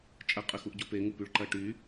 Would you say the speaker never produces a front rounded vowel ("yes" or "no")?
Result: no